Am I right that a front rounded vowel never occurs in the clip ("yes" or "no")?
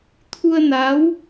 yes